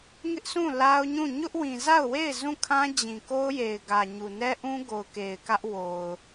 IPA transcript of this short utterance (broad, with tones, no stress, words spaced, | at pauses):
ŋɪ˦ʔsũ˦˨ la˦ʊ̯ɲũ˦˨ ɲʊ˦ʔwĩ˨ za˦˨ʊ̯we˦˨ɪ̯ zũ˦˨kʰã˦d͡ʑĩ˨ko˦ʊ̯ je˨ɪ̯ɡä˨ ɲu˨nɛ˦ʔũ˦ ɡo˨ʊ̯ke˨ɪ̯ kä˦ʔwo˨ʊ̯